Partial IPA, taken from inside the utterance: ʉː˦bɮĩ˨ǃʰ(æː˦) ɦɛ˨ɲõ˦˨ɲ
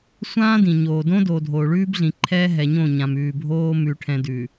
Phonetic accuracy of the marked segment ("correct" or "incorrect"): incorrect